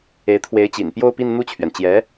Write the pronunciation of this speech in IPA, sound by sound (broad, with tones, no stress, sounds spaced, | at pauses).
e˧˥ ɪ̯ t̪ʰ w e˧˥ ɪ̯ t͡ɕ ḭ˨˩ n p j o˥˧ ʊ̯ p i˥˧ n n̪ u˥˩ t͡ɕʰ ɥ ɛ˩ n t͡ɕ j ɛ˧˥